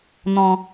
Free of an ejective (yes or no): yes